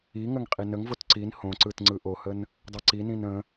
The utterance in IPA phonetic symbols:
i ŋ ə ŋ qʼ i n ə ŋ v o t ǀ i n h õ ǀ ɯ t ŋ͡ǀ ɯ ʔ o h ə n | dˤ ə ǀ i n ĩ n ə̃

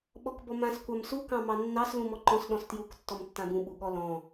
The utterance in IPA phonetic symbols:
ɓ ɔ k b ɔ m ã s kʷ a m s u k ɑ̃ m ɑ nː ɑ s l ũ m ɔ ǃ ɔ̃ s ɗ ɔ̃ s t j u k tː ɔ m tː ã b ũ ɓ u ɠ ɔ l ɔ̃

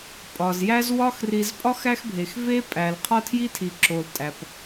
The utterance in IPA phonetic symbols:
pʼ ɒ˩ z j æ˦ z w ɒ˦ x r i˨ z pʼ ɒ˥ x æ˦ x bʱ e˩ x v e˦ pʼ æ˩ l qʰ ɒ˦ tʰ j i˦ tʰ i˩ ǁ o˩ l tʼ æ˩ p

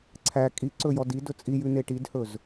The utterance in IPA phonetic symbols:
ǀʰ æ kʼ i ǀ ɵ j ɔ d i d ɵ t͡sʼ i j ʉ n e ʈ i d h ɵ z

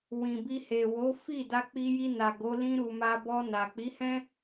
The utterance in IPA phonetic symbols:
w ĩ˨ b i˧ h e˨ w o˨˦ f i˦˨ d a˧ k͡p i˧ j i˧ n a˨ ɡ o˨˦ l ĩ˧ ɾ u˨ m a˧ b ɔ˧ n a˨ k͡p i˨˦ h ɛ̃˦

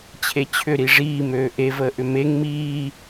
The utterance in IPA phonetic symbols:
t͡ɕʰ e t͡ɕʰ ʏ ɾ i ʐ iː m øː ʔ e v əː ʔ ʏ m e ŋ m iː

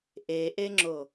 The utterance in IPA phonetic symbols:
ʔ e ʔ e ŋ͡ǁ o

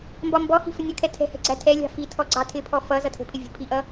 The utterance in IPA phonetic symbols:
m b ɒ m b ɔ h i̤ f ə nʲ ʌ kʰ ɛ tʰ ɛ̤ h ɛ̤ ɡ͡ǀ æ tʰ ɛ lʲ ɑ̤ f i tʰ ɔ ɡ͡ǀ ɑ tʰ ɪ pʰ ɔ f ʌ z ʌ tʰ ə̤ pʰ ɪ vʲ ə̤ pʰ i ʔ ʌ

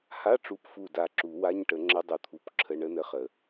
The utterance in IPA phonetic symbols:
h a˧˥˧ ʈ͡ʂ u˧˩ p f u˧˩ d a˧˩ ǁ u˨˩˦ w a˧˥˧ ɲ ʈ ə˨˩˦ ŋ͡ǁ ə˦˥ dˤ u˧˩ t̪ʰ u˧˥˧ p ǁʰ ə˧˥˧ ɳ ə˦˥ n ə˧˥˧ χ ə˨˩˦

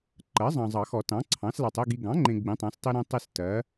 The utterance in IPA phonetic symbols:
ǃ ɜ˩˥ zˤ ɑ̃˨ zˤ ɑ˨˩˦ x ɔ˨˩˦ t ɑ̃˩˥ ǀʰ ɑ̃˩˥ s l ɑ˨ tˤ e˦˨ ɡ i˨ ɡ ɑ̃˩˥ ŋ͡ǃ ẽ˨ ɡ͡b ĩ˩˥ tˤ ɑ̃˩˥ s tˤ i˦ ɾ ẽ˦ tˤ i˦˨ s t ɜ˩˥

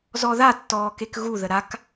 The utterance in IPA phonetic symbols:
z ɔ ð a tː ɔː k e k ɣ u ð ə ɾ a k

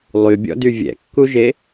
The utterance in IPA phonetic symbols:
lˠ y bʲ ɔ̰ d y vʲ ɛ̰ kː u ʒ e

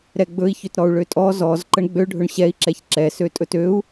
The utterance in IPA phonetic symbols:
ɾ ɛ ɡ͡b ɵ i̯ ç ø t ɾ ɔ u̯ ɭ ø tʼ ɔ z ɔ z ǃ ə ɳ ɡ͡b ø ɖʱ ɵ ɳ ɕ ɛ i̯ ǁ ɛ ç ǁ ɛ s ø tʼ ɵ t ø u̯

